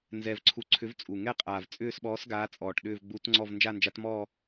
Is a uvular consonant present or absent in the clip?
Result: present